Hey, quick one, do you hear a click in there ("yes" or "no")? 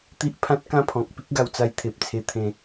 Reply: no